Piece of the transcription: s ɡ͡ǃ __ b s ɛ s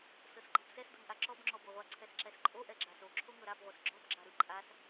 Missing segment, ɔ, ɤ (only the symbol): ɤ